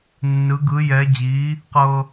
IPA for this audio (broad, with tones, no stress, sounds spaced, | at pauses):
nː ɯ˧˥ ɡ ɯ˧˥ j ɛ˧˥ d͡ʑ i˧˥ | q ɤ˥